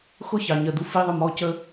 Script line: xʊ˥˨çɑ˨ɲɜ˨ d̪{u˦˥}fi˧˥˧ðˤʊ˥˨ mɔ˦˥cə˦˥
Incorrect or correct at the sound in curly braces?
correct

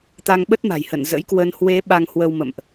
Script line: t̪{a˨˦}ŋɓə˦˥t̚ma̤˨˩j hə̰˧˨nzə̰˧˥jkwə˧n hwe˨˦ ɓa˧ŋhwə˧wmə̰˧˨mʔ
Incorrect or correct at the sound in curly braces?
incorrect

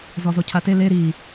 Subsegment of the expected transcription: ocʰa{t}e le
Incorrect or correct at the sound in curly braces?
correct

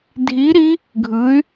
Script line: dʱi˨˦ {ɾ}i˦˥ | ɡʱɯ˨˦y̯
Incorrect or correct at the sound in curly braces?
correct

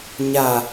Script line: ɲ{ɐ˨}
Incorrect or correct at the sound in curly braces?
incorrect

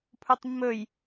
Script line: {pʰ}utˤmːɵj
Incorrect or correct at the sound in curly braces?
correct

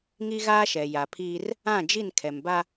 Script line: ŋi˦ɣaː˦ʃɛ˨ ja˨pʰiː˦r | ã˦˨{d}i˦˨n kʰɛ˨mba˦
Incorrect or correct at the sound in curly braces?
incorrect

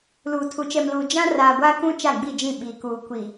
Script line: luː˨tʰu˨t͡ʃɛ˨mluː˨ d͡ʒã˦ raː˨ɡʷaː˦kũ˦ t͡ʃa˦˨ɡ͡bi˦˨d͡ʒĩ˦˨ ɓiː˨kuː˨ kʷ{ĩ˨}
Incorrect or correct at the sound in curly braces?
incorrect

